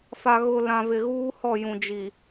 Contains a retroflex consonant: no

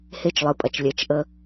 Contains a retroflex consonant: no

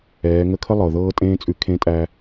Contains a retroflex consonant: no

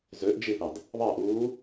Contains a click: no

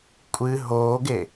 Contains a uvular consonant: no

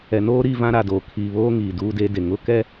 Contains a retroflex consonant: no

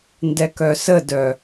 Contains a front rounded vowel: yes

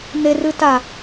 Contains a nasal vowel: no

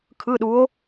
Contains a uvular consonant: no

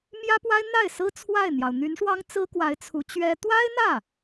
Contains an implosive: no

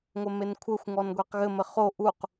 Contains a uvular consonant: yes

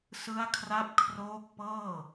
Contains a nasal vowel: no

